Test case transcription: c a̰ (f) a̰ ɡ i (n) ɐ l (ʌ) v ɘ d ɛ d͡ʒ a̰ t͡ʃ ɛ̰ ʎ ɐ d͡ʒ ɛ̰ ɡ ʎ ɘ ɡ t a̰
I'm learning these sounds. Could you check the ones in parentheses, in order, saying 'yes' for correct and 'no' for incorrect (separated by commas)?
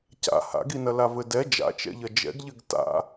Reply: no, yes, no